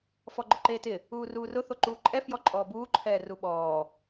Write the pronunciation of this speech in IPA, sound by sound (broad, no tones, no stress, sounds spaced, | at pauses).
f ɔ ɡ͡ǃ ʊ ǃ eː t ɪ | uː r uː r ʊ θ o ǃ uː ǃʼ ɛ f j ɔ ǃʼ ɔː b uː ǃʰ ɛː r u ɓ ɔː